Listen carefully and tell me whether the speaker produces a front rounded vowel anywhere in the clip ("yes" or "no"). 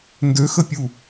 yes